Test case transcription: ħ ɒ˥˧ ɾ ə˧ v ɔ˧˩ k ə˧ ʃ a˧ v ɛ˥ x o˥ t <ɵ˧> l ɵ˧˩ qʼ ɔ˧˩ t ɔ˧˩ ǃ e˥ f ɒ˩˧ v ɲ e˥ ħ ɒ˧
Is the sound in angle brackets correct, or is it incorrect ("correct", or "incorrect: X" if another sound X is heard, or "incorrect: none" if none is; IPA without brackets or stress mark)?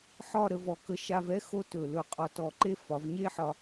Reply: incorrect: ɵ˧˩